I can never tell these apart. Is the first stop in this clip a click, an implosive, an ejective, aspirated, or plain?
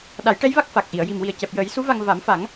implosive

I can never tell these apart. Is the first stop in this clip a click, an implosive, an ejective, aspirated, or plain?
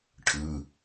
aspirated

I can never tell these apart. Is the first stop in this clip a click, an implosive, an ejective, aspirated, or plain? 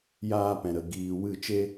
plain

